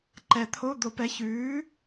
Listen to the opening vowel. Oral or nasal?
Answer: oral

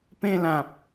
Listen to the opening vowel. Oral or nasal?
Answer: nasal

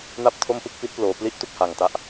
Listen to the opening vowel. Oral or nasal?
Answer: oral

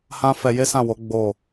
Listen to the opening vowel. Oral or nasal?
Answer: nasal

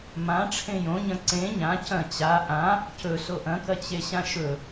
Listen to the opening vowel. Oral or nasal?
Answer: nasal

